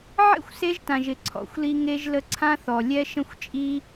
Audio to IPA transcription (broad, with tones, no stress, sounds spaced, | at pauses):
ʕ ḛ˦ xʷ s e˧ ʒ t ã˨ ʒ ɪ˨ ǀʰ ɔ̰˨˦ xʷ l i˧ ŋ e˧ ʒ l ə˧ ǀʰ ã˦ θ ɔ˨ lʲ ɛ˦ ʃ ə̃˦ xʷ t͡ʃʼ i˦